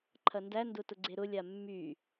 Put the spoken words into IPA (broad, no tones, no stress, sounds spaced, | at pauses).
ǃʰ ɐ n d æ n d ʊ t ʊ ɡ͡ǀ e ɾ ʊ lʲ a mː y